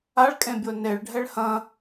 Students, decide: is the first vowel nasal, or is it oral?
oral